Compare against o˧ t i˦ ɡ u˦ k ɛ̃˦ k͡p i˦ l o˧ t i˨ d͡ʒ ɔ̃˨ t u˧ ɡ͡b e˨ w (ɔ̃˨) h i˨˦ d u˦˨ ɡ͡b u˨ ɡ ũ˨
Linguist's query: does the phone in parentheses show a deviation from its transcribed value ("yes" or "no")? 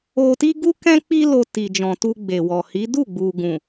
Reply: yes